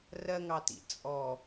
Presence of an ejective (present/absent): present